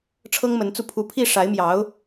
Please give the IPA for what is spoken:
ʈ͡ʂʰ ɤ˥ ŋ m ə˧˥ n t͡s u˥˩ pʰ u˧˥ pʰ i˥˩ ʂ a˧˥ ɪ̯ m j ɑ˧˥ ʊ̯

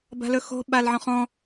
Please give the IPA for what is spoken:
b a̤ l ɵ x o̤ ɓ a l ʕ ɔ̃ χ ɔ̃

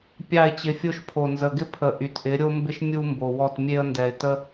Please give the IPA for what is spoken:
pʲ ɑ˦˨ ɪ̯ t͡ɕ ɪ˧ fʲ o˦ ʃ pʰ o˨ n z ə˨ ɡ ɪ˦ pʰ ə˨ ʔ y˨ t ʔ ɪ˨˦ ɾʲ o˦ m b ɪ˦ ʃ mʲ u˦ m b o˨ w ɔ˦˨ t mʲ e˦ ə̯ n d ɛ˨ ɪ̯ t ə˦

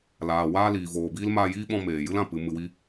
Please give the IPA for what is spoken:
l aː˨ w aː˧ l iː˨ v oː˨ b iː˦ l m aː˧ j iː˦ ɓ ɔ̃˧ m eː˨ j ɨ˦ l ã˨ p ɨ˨˦ m ɨ˧ w i˦

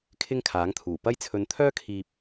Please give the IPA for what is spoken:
kʰ ɪ˥ ŋ kʰ aː˨˥ ŋ t̪ʰ uː˨˩ p ɐ˥ j t͡sʰ ɵ˧ n t̪ʰ œː˥ kʰ iː˧ p̚

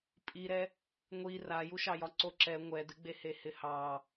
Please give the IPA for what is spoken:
pʼ i ɾ ɛ | ŋʷ i r a j u ʃ ɑ j ɒ ǀ o ǁ ɛ ŋʷ ɛ d ɨ ɡ͡b e h e h ɪ h ɑ

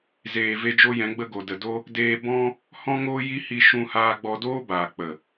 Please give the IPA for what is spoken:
z eː˨ v e˧ d͡ʒ o˦ j ɛ̃˨˦ ɡ͡b ə˦ ɡ o˨ d ə˨ d o˦ | d eː˧ b ɔ̃˦ | h ɔ̃˦ ŋ oː˦ j i˦ h i˧ ʃ ũ˧ h aː˧ ɡ͡b ɔ˧ d oː˦ b aː˨ k͡p ə˨

